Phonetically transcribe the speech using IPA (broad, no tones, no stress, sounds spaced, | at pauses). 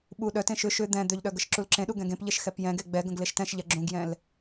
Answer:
ɓ u ɗ œ t ẽ ʃ ʏ ʃ ʏ d̪ ɛ̃ d̪ ʏ ʎ ɗ œ ɡ ə ʃ ǁ u l ǁ ẽ ɗ u ɡ ɛ̃ ɡ ẽ p ʎ e ʃ x ɛ p j ɛ̃ ɡ e ɡ͡b ɛ ɡ ə̃ ɡ l e ʃ t ɛ̃ ʃ ʎ ɛ ɡ͡ǁ ũ ɡ j ɛ̃ l